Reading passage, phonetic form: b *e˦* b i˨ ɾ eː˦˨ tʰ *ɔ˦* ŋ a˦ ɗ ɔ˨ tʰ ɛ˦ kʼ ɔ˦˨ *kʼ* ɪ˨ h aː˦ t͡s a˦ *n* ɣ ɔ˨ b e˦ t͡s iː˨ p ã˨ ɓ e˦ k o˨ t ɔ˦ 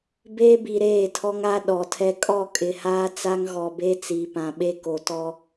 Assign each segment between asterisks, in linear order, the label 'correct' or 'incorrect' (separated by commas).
incorrect, correct, correct, incorrect